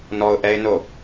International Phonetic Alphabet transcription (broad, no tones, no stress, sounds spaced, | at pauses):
n ɔ ʊ̯ ʔ ɛ ɪ̯ n o